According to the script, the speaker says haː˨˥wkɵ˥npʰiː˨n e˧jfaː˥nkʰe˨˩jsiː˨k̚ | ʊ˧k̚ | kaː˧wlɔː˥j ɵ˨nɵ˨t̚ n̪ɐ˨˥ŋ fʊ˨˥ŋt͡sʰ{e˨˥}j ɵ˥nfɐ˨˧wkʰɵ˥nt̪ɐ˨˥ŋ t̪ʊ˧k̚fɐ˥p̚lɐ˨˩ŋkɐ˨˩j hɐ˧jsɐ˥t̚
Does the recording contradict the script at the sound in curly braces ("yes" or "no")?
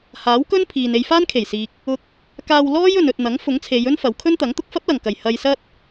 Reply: yes